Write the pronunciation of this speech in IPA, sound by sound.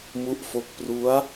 m u˦˥ ʔ f o˦˥ k̚ p r u˦˥ a̯

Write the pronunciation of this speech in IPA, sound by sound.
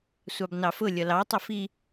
sʷ ɑ b n ɑ f ʊ lʲ ʌ l ɑ tˤ ʊ f i

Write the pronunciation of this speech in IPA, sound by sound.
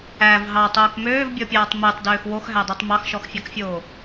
æ v ɦ ɑ tˤ oː k m øː v bʲ ɔ pʲ ɑː tˤ m e tˤ d øː x w o x ɦ æ dˤ o tˤ m ɑ x ʃ ɔ x fʲ a k fʲ oː

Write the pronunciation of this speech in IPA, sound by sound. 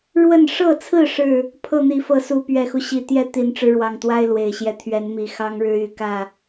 ɻ w ə˥˨ n ʂ ɤ˥˨ t͡sʰ ɹ̩˥˨ ʂ ɻ̩˥˨ | pʰ ɤ˥˨ n̪ i˨˦ f ɤ˨˦ s u˨˦ p ɥ ɛ˨˩ x u˦ ɕ i˨˩ t̪ j ɛ˥˨ t̪ i˨˩ n ʈ͡ʂ ɻ̩˦ ɻ w ɑ˨˩ ŋ t̪ w a˦ ɪ̯ l w e˨˩ ɪ̯ ɕ j ɛ˦ t̪ʰ ɥ ɛ˨˦ n m i˨˩ x ɑ˦ ŋ ɻ ɻ̩˦ y˨˩ k ä˥˨

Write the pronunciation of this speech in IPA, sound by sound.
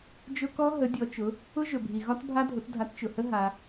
d͡ʒ ʊ˦˥ k ɔ˦˥ ɦ ə˨˦ dʲ ɔ˨˦ t͡ʃ ʊ˨˦ | ʊ˦˥ ʒ ɵ˨ bʱ i˨ ɣ ɒ˦˥ t bʱ a˦˥ dʱ ʊ˨˦ t dʱ a˨˦ t t͡ʃ ʊ˨ h ə˦˥ ɦ a˦˥

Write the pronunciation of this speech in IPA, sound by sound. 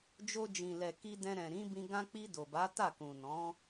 d͡ʒ o˧ d͡ʒ ĩ˨ l ɛ˨ k i˧ d ɛ̃˧ ɾ ɛ̃˨ ɾ ĩ˨˦ b ĩ˧ ɡ ã˧ k͡p i˧ d o˨ b a˨˦ t a˦˨ k ũ˨ n ɔ̃˨˦

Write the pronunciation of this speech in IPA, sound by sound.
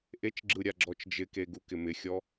ʔ e t͡ʃ ɡ͡ǁ ɯ ɾʲ a ɡ͡ǁ ɔ t͡ʃ d͡ʒ ɪ k e ɡ u k ɪ m ɪ xʲ ɔ

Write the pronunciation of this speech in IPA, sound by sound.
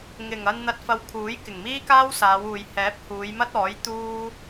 ŋ ɪ˨˩ ŋ ɐ˧ n n̪ ɐ˧ t̚ f ɐ˧ w kʰ uː˨˥ j k ɪ˨˩ ŋ m iː˥ k aː˥ w s aː˨˧ w uː˨ j h ɛː˨˥ p̚ h uː˨˧ j m ɐ˥ t̚ ɔː˨˥ j t̪ uː˥

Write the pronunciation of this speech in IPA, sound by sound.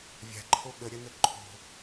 vʲ a̤ ǃʰ o ɠ ə ɾʲ ɐ n ə ǃʰ o̤

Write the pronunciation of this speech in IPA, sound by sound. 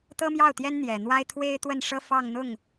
t̪ ɤ˥ m j ɑ˥˩ ʊ̯ t̪ j ɛ˥ n n̪ j ɛ˨˩ n̪ w a˥ ɪ̯ t̪ʰ w e˥ ɪ̯ t̪ w ə˥˩ n ʂ ɤ˥ f ɑ˥˧ ŋ n̪ ʊ˥˩ ŋ

